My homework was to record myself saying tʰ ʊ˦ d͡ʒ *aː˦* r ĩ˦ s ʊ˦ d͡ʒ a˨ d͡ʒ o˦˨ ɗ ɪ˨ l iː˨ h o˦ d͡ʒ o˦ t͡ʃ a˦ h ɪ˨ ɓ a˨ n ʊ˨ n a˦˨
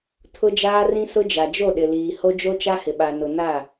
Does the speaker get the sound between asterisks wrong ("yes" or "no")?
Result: no